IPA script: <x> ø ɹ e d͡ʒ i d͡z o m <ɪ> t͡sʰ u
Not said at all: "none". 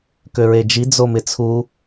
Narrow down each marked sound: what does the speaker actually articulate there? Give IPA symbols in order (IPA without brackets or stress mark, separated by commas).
k, ɪ